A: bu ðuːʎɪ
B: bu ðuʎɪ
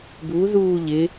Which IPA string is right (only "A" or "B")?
A